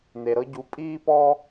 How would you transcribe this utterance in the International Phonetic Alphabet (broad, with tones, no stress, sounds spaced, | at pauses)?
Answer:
n̪ e˨ ɾ ɤ˦ ɟ u˨˦ pʼ iː˦ p ɔ˦